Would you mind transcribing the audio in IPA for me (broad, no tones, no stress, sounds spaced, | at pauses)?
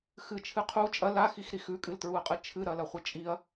x ɨ t͡ʃʰ ɨ qʰ u t͡ʃʼ ɐ l a x i x ɾ i x ʉ kʼ ɨ l t ɹ u ɐ̯ qʼ ɨ t͡ʃʰ ɨ ɾ ɐ l ɐ χʷ ɨ t͡ʃʼ i ɐ̯